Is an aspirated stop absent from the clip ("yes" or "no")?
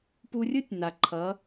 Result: no